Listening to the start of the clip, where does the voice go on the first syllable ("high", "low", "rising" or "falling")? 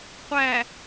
low